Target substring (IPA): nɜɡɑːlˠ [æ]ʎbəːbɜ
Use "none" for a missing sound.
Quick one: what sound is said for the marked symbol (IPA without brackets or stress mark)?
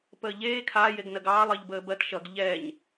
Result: ɜ